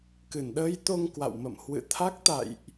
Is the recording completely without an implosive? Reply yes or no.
no